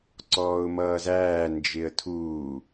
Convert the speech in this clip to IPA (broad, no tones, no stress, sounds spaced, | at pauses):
ǀ ɔː ʊ̯ m ʌː z æː n d͡ʒ ɪ ə̯ tʰ uː